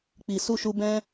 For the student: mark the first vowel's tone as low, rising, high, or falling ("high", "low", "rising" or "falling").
low